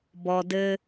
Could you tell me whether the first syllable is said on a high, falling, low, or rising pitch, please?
low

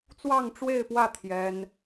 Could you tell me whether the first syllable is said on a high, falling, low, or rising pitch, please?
falling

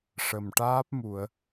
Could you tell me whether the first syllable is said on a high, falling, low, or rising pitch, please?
low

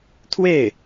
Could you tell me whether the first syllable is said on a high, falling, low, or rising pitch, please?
falling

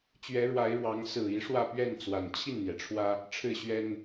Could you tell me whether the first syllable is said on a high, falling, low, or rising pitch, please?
rising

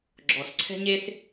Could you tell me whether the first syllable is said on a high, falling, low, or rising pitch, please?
low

